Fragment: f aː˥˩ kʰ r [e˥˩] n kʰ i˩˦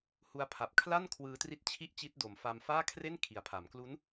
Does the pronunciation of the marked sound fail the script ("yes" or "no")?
no